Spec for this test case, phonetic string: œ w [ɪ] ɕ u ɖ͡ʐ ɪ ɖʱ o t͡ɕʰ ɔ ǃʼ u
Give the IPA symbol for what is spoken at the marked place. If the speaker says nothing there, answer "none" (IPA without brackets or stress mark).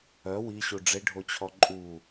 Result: i